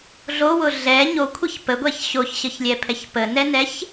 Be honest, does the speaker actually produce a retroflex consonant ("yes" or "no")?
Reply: no